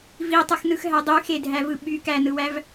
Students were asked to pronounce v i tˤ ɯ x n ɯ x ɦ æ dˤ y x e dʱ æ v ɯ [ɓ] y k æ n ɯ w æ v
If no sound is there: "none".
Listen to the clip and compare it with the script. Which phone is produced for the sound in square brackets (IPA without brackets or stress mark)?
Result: ɓ